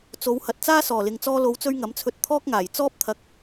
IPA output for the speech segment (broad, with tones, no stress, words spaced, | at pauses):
t͡so˨˧whɐ˨t̚ t͡saː˥sɔː˨˩lɪ˨ŋ t͡sɔː˧lo˨˧wt͡sɵ˧ɥ ŋɐ˨˥mt͡sʰɵ˧t̚ t̪ʰɔː˥k̚ŋaː˨˩j t͡sɔː˥p̚t̪ʰɐ˧k̚